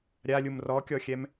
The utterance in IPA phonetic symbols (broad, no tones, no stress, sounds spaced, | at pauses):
ɾʲ a lʲ u m r ɔ kʲ ɔ xʲ ɛ m